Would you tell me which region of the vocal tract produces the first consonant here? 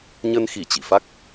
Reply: palate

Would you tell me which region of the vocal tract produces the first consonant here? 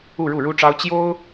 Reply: retroflex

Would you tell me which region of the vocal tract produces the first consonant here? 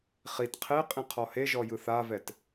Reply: uvula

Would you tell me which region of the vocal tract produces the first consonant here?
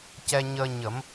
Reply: palate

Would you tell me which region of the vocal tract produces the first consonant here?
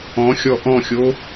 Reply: velum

